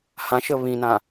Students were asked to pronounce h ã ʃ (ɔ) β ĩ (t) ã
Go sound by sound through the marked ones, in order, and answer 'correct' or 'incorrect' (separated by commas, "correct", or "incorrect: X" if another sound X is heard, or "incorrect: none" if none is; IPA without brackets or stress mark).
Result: incorrect: ə, incorrect: n